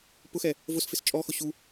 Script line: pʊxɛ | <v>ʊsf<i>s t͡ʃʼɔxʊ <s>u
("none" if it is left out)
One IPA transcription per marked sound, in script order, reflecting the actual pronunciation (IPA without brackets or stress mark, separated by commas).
v, ɪ, ɕ